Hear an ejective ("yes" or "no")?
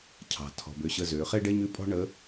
yes